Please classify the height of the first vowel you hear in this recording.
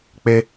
mid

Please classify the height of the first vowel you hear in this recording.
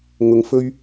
high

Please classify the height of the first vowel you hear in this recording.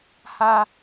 low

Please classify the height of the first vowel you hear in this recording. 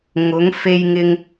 high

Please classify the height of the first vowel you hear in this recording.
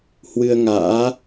high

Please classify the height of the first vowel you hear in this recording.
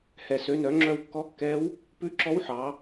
mid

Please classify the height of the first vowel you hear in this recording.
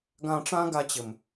low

